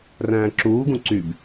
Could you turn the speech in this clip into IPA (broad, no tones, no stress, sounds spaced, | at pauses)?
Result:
r æ̃ː ǁ uː ɡ ũ ǀ y b